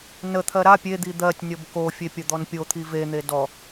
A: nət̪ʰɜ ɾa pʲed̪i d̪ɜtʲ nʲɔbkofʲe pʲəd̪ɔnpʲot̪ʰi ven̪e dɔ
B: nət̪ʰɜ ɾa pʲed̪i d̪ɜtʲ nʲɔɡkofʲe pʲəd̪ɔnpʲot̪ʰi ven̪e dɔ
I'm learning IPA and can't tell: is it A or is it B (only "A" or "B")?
A